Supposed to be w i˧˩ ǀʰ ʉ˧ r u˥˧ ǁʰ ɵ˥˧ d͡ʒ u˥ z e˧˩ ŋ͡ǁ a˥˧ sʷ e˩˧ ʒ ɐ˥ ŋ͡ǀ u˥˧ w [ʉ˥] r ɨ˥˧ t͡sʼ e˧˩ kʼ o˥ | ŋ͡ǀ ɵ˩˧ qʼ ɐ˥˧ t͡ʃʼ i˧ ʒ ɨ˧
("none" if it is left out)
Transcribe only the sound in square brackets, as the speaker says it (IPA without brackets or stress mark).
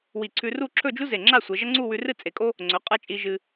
ʉ˧